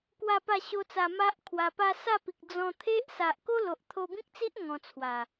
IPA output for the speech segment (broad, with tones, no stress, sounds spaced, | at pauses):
k w a˥˧ p a˥˧ ɕ o˦ t͡s a˧ m a˦ ʔ kʰ w a˧ p a˦ s a˥˧ p i˨ k̚ d͡z ɔ̃˧ t̪ʰ e˦ ʔ s a˨ ʔ k o˦ l o˨ ʔ t̪ʰ o˧ b ĩ˦ k̚ t͡s i˦ ʔ ŋ ɔ̃˧ t͡sʰ w a˨˩